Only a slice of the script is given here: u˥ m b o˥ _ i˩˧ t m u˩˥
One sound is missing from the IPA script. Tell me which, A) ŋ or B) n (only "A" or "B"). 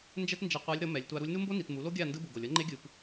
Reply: B